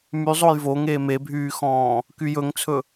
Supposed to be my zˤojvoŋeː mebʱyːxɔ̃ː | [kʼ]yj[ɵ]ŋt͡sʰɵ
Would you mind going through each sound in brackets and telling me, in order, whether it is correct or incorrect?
incorrect, correct

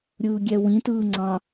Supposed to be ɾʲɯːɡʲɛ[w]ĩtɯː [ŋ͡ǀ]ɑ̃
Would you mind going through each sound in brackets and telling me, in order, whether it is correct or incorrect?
correct, correct

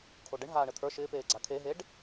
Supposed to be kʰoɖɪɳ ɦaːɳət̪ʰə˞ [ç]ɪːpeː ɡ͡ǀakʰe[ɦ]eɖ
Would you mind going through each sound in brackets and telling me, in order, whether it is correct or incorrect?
incorrect, correct

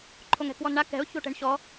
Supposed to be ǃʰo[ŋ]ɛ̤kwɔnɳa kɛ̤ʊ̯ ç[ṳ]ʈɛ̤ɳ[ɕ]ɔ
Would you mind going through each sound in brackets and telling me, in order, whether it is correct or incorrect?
correct, incorrect, correct

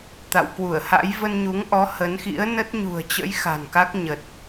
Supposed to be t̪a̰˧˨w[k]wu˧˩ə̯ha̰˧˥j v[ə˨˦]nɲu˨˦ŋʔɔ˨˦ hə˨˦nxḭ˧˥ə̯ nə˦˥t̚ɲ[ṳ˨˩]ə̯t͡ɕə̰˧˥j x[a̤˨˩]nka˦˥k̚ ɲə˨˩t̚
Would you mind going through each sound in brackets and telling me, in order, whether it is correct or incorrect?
correct, incorrect, correct, correct

